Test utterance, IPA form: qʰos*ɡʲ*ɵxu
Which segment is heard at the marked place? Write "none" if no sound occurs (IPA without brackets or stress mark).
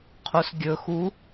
ɡʲ